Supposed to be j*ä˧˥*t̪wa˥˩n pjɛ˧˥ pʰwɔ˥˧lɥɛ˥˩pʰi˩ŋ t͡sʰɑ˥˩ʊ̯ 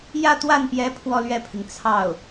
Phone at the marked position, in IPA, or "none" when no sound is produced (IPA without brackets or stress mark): ä˥˧